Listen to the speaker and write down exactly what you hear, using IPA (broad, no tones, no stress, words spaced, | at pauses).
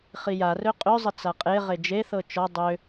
χijarø qʼøzˤə t͡saqʼeʁe d͡ʒeθɤ t͡ʃɔ dˤø